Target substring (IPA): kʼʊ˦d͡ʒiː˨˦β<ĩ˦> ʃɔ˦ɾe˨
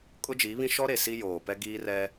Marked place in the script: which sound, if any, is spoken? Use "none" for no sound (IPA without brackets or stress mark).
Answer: ĩ˦